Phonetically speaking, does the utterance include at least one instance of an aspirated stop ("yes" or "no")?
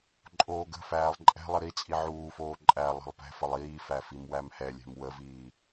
no